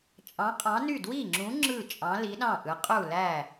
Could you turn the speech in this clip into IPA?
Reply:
t͡ʃʼɑ̃˨˥qʼɑ̃˨˥ny˥˩ dwi˥˩ŋ͡ǁũ˨˥ ŋ͡ǁɯ˥˩t͡ʃʼɑ̃˨˥ li˨˥ɗɑ̃˥˩ʔɯ˨˥ qʼu˥˩læ˥˩

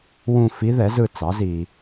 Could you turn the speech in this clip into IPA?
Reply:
wũ˦˨fi˧˥ ðɛ˩˥zɯ˦˨t͡sɑ˩˥zi˨

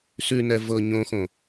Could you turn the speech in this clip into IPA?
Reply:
sʉnɛ vɤ ɲõxõ

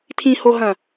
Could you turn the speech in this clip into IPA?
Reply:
tʰĩhoɦɐ̃

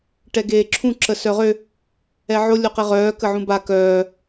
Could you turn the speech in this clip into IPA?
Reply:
ʈɛɡeːǁʰũ ǁəsœʁø | ɛʕo lʲoqeʁœː kəʕũba kœː

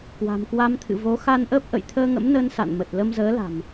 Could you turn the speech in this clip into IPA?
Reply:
kwa̤˨˩mkwa˧mt̪ʰɨ̰˧˨ vo˨˦ xa˧nʔəː˦˥p̚ʔə̰˧˨j t̪ʰəː˧ŋə̰˧˥mnəː˧n sa̰˧˨nmə˨˩t̚ lə˧m zəː˨˦la̤˨˩m

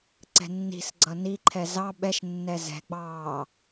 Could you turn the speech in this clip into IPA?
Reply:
ǀɛ̤nːi̤sɡ͡ǀʌ niǃʰɛ zɑ ɓɛʃnːɛ zɛ̤ɡ͡bɑː

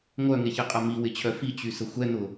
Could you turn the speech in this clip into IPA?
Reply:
ŋʷœŋeçɪqʼɐ miwɪt͡ɕʰœ fit͡ɕysə xʷɛn̪ʊ

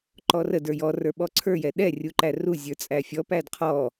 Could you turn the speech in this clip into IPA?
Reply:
ǃɔrə də˞jɔ rə˞ɓɔǀʰə˞ jɛɗɛ rʲuǃæru zʲə˞t͡sʼæfʲɔ pædqʰɔ

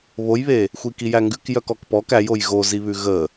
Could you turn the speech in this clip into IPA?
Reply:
βojβe | xʷikijæŋɡʉk jœkɔkpɔk æj ojɣoziβʉ ɣə

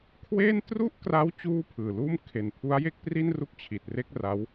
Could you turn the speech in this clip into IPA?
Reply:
kʰweː˥˩n tru˥˩ʔkra˦˥w t͡ɕuː˥˩pʰɯː˨˩luː˥˩m kʰe˨˩n pʰu˦˥a̯je˥˩k̚pri˥˩n ru˥˩k̚t͡ɕʰi˨˩t̚ re˥˩k̚ra˦˥w

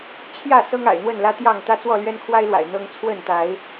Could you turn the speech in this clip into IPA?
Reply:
t͡ɕʰjä˥˨ sɤ˦ŋa̰˨˩ɪ̯n̪wə˥˨nlä˦ t̪jɑ˥˨ŋ t̪ä˦t͡swɔ˥˨ lɥɛ˦nkʰwa˦ɪ̯lwa̰˨˩ɪ̯ n̪ɤ˦ŋ t͡sʰwə˥˨nt̪a˨˦ɪ̯

